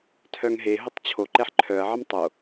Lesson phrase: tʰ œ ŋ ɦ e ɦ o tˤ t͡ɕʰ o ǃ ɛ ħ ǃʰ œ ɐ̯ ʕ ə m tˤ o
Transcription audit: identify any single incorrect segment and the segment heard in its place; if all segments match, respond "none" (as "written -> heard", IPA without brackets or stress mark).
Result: none